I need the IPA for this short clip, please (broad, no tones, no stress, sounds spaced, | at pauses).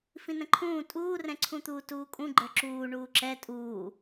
f ĩ n ə̃ ǃʰ ũː tʼ uː r ɛ̃ ǀʰ ũ t̪ uː t uː kʼ ũ ɡ͡ǃ ə˞ ǁ uː ɳ uː ǁ ɛ tʼ uː